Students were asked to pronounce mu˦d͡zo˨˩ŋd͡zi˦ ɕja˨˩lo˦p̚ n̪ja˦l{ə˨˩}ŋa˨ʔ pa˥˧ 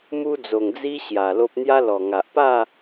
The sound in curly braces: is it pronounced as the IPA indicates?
no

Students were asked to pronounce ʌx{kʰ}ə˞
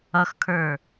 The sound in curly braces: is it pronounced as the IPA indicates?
yes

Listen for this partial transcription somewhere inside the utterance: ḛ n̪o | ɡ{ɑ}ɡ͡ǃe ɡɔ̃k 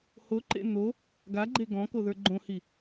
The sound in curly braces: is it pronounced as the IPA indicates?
no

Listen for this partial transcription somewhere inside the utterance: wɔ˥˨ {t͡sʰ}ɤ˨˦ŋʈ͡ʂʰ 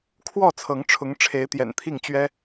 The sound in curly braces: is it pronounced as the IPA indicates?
yes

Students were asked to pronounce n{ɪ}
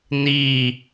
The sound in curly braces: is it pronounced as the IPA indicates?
no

